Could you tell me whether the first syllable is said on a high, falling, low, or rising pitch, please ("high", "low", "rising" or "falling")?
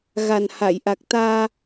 low